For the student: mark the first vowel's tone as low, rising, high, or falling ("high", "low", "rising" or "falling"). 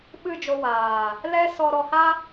falling